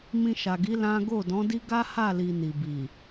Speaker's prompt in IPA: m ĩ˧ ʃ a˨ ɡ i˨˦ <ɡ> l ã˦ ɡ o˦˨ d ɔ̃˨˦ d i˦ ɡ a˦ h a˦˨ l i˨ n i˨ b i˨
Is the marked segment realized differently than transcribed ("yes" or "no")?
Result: yes